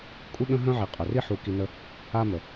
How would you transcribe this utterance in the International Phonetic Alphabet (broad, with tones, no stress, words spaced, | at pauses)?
kʷʼi˦ɠə̃˦ɦœ̃˦ ʕi˨qʼœ˨ri˥ ħu˦ki˦nə˥ | a˦mə˨